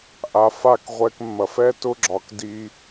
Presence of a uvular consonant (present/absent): present